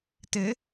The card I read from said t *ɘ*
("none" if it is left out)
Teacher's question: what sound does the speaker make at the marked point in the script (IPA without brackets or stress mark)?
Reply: ɘ